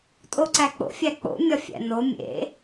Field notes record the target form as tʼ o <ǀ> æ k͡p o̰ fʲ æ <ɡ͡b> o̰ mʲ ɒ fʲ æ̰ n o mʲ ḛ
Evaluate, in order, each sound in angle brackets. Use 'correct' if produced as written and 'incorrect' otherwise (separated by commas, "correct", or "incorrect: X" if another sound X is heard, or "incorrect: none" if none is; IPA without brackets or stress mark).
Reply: correct, incorrect: k͡p